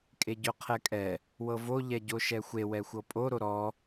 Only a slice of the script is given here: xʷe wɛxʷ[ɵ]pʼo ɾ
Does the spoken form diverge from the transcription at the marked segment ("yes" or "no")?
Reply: yes